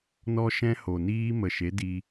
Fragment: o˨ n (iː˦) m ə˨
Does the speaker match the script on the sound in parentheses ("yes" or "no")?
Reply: yes